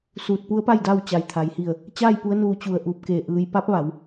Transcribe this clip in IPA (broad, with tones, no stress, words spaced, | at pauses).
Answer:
suː˧˩t̚pu˧˥ə̯pa˥˨j da˥˨w t͡ɕa˩jt̪ʰa˩jhi˧˩ə̯ | t͡ɕaː˥˨j pu˧˥ə̯nuː˧ t͡ɕu˧˩ə̯ ʔuː˧˩p̚keː˧˩ ʔɯː˩j pa˧˥p̚ʋa˩˧w